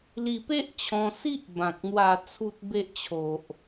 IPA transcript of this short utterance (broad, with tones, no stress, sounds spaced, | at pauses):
l i˧ p e˦ ʔ t͡ɕʰ ɔ̃˧ s i˦ ʔ b ã˨ k̚ n̪ w a˧ t͡sʰ u˦ t̚ b e˦ ʔ t͡ɕʰ o˨ ʔ